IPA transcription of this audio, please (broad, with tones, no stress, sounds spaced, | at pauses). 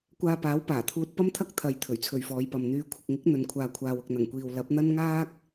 kʷ aː˧ p aː˨˥ w p aː˨˩ t̪ʰ uː˧ t̚ p ɐ˥ m t̪ʰ ɐ˥ k̚ t̪ʰ ɐ˨ j t̪ʰ ɵ˨˩ ɥ t͡sʰ ɵ˨ ɥ f ɔː˨˧ j p ɐ˨ m n̪ yː˨˧ kʷʰ ɪ˨ k̚ ŋ ɪ˨˥ k̚ n̪ ɵ˨ n kʷʰ aː˨ kʷʰ aː˨ w ʊ˨ k̚ n̪ ɐ˨˩ ŋ kʷ iː˨ w l ɐ˨˥ p̚ n̪ ɐ˥ n ŋ aː˥ k̚